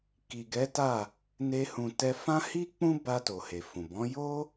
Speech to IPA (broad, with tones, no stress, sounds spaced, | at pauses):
k i˨ ɡ ɛ˨˦ t a˦˨ | n e˧ h ũ˨ t ɛ˧ f ã˦ h i˦ k͡p ũ˦ b a˧ t o˨ h e˨ f ũ˨ b ɔ̃˨˦ j o˦